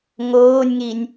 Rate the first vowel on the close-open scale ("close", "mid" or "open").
mid